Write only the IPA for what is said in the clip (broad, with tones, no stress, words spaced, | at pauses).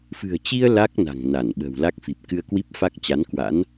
fɨ̤˨˩ə̯t͡ɕi˧ə̯ la˦˥k̚na̤˨˩ŋ na˧˩nɓə̤˨˩wla˦˥k̚fi˨˩p̚ kɨ˧ə̯kwi˦˥p̚fa˦˥k̚ t͡ɕa˨˦nkwa̰˧˥n